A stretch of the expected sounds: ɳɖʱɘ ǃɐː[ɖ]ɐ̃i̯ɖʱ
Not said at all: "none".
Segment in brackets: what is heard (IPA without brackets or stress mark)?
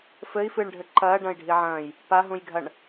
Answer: ɖ